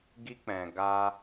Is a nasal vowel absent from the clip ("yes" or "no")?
no